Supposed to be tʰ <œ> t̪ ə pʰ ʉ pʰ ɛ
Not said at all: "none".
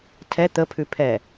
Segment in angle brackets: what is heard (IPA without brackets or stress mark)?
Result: ɛ